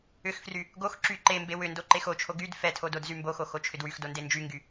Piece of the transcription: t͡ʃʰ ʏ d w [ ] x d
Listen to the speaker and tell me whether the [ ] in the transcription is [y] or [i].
y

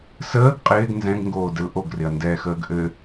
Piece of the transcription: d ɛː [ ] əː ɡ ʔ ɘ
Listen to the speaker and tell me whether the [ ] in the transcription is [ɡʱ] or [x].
x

